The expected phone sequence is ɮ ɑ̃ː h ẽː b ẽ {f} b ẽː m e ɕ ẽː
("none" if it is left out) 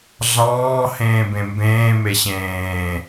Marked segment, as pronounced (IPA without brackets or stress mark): m